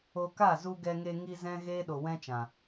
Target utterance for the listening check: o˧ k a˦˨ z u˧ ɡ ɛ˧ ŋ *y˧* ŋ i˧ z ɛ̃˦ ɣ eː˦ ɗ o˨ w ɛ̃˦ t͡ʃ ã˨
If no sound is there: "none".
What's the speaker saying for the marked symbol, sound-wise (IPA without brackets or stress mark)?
e˧